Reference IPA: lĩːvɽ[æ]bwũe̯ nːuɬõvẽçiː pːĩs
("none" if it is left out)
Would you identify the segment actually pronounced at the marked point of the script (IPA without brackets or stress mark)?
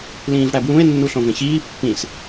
æ